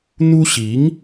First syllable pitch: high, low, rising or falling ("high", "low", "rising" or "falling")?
high